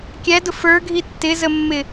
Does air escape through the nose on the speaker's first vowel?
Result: no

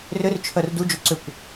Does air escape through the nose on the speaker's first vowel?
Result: no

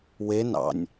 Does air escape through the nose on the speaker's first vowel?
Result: no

